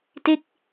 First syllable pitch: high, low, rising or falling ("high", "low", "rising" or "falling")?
falling